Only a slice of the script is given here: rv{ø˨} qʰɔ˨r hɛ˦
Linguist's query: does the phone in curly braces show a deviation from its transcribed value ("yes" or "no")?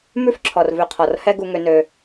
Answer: no